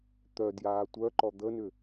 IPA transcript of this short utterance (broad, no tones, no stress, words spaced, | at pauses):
t̪œdjaː tʷœǃɔ d̪ənʏ